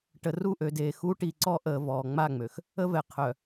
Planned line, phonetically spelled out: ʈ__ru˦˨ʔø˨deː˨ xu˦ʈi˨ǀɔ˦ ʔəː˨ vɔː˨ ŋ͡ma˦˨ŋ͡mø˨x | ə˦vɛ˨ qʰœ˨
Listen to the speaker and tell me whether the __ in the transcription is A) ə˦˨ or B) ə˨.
B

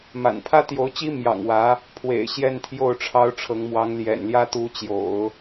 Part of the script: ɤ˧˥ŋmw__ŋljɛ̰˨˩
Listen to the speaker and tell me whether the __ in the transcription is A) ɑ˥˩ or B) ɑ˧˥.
B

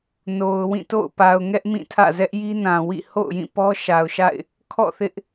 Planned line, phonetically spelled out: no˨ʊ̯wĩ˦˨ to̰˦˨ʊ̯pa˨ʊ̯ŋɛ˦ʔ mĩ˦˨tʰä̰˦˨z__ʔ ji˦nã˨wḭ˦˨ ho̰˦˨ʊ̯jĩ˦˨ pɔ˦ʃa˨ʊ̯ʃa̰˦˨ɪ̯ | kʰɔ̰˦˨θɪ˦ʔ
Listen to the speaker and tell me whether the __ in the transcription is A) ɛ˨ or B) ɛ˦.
B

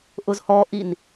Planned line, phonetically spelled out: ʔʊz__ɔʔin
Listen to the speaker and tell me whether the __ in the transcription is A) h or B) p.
A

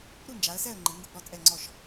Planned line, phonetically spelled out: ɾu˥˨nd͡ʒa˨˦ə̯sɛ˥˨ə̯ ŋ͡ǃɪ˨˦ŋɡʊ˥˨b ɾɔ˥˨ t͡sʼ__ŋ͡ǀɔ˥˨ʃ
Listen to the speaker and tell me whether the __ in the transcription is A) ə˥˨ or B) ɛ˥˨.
B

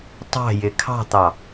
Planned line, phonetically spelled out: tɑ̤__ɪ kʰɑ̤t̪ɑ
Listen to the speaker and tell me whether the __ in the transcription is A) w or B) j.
B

